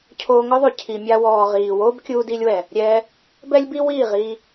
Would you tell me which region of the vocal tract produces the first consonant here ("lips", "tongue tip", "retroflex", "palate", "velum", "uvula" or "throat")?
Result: palate